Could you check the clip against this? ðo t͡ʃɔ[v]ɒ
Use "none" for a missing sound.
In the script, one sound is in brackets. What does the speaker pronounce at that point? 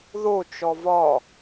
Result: v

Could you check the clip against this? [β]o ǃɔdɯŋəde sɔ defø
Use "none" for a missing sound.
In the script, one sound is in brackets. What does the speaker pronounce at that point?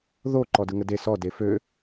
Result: ð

